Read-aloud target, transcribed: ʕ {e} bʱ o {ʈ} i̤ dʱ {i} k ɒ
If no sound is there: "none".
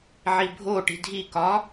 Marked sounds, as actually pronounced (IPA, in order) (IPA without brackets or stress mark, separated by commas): i, ʈ, i